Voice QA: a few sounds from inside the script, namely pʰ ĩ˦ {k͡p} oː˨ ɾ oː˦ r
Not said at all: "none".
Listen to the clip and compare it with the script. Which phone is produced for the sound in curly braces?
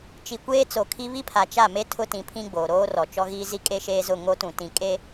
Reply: ɡ͡b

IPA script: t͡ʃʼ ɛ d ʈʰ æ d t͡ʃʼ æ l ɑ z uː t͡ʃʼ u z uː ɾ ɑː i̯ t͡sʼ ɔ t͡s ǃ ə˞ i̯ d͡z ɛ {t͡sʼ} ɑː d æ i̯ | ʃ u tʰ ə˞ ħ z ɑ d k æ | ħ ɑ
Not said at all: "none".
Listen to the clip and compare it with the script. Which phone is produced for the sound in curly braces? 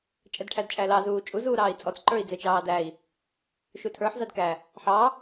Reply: t͡ʃ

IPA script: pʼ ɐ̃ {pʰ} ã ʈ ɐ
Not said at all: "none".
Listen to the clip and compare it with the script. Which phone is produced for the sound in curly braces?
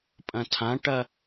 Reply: tʰ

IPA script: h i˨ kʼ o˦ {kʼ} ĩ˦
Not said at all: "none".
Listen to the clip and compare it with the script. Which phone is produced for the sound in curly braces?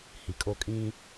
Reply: kʼ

